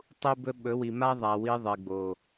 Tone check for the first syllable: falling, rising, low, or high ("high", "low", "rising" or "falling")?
high